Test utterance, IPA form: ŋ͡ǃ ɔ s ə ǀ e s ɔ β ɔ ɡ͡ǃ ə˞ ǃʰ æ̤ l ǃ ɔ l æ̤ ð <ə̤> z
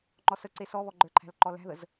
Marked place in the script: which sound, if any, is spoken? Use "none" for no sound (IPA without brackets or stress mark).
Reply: ə